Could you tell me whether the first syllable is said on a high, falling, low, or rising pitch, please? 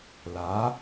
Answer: rising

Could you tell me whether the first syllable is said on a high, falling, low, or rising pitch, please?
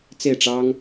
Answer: falling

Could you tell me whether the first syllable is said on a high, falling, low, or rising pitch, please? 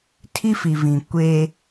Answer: high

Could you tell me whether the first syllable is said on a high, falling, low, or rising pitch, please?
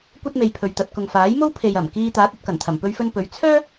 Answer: high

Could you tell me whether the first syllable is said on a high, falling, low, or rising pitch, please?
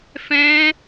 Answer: high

